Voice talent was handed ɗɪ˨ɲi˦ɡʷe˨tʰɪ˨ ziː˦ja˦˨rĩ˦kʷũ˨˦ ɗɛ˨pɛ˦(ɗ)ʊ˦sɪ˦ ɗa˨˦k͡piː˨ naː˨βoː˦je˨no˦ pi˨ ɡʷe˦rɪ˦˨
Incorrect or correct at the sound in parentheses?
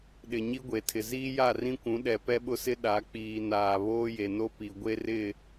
incorrect: ɓ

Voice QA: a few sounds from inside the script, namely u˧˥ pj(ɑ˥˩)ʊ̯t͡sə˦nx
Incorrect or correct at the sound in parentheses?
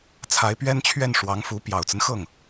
incorrect: ɑ˨˩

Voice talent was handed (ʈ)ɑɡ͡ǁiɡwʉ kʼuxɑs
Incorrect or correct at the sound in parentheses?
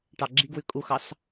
correct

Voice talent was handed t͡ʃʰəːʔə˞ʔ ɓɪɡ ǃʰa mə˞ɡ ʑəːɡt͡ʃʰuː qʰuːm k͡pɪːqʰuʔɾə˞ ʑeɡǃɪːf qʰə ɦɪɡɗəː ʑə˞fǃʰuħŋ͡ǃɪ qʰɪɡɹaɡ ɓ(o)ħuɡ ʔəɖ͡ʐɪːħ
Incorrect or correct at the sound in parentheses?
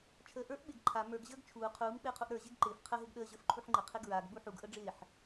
incorrect: u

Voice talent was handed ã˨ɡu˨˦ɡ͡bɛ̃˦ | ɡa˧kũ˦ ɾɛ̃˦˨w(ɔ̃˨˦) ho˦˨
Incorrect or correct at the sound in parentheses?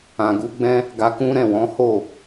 correct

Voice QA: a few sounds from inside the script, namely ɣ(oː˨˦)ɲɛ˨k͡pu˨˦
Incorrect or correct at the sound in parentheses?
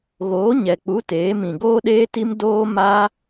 correct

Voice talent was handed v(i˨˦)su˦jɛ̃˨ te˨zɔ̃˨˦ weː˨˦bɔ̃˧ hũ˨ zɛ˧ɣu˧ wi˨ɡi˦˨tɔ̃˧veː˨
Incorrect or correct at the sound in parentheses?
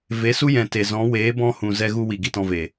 incorrect: e˨˦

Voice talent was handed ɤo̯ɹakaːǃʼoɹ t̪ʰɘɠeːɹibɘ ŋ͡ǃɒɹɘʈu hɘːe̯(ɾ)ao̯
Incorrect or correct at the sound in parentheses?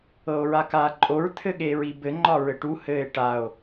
incorrect: ʈ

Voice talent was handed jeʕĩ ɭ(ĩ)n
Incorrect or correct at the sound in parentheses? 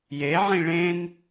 incorrect: ẽ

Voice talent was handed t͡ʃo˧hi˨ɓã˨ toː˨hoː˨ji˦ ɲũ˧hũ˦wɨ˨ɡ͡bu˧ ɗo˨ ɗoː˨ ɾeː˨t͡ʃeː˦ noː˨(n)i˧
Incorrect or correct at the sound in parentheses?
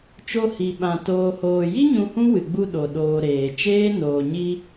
incorrect: ɲ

